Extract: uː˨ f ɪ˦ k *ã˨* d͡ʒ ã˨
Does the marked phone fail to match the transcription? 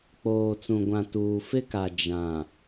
yes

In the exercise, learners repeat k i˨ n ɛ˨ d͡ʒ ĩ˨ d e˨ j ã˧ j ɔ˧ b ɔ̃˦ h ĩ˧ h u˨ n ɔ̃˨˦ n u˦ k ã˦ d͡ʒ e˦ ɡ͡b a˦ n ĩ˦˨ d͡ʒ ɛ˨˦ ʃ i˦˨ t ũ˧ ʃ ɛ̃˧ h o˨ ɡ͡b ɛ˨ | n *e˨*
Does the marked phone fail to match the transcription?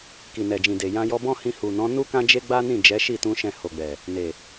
no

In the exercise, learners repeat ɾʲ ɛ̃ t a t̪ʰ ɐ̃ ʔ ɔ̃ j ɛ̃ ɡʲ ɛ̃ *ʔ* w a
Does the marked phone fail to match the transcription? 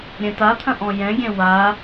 yes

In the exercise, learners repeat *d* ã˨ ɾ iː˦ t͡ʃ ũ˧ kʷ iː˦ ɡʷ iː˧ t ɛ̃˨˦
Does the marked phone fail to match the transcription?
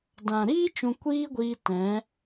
no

